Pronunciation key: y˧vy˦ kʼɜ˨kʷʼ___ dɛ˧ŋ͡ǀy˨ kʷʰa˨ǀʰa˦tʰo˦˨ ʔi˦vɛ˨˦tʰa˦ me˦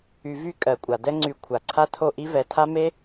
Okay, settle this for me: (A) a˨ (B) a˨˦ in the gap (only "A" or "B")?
A